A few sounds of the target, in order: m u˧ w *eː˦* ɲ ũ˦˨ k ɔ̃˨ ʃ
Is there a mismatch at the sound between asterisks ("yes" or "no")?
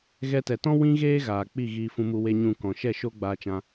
yes